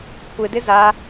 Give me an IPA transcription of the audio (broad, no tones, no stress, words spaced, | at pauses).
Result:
kʷʰɪdɪ za